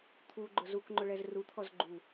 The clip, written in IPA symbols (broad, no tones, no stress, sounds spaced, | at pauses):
t̪ʰ u ɡ͡ǃ ʊ z u k ŋ͡ǃ ʊ ɭ ɛ z r u t̪ʰ ɔ z ɡ͡ǃ u